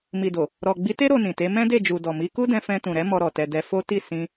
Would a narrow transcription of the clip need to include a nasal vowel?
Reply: yes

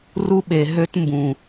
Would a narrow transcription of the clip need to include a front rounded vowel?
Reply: yes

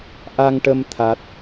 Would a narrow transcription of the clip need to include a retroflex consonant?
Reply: yes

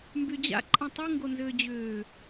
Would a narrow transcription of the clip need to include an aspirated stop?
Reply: no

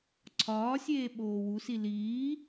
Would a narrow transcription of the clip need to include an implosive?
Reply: yes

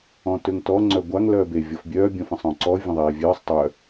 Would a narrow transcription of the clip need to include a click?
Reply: yes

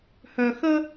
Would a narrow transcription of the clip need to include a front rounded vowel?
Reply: yes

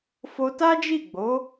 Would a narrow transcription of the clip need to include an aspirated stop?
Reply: no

